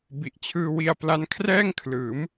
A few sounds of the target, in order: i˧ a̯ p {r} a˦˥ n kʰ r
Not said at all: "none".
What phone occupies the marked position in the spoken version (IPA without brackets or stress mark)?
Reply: l